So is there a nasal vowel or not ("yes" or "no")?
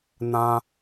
yes